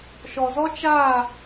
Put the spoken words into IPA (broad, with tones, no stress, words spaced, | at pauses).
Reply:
ʃɔ˨zɔ˦ t͡ʃa˦˨